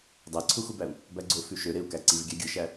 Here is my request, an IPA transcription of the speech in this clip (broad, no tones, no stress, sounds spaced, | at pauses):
dˤ æ ǀʰ u x u b æ u̯ | b æ ɡ͡ǀ o f y ʃ ø ɾ e u̯ k æ ǀ i v ɡʲ æ ɡʲ ɯ ʃ æ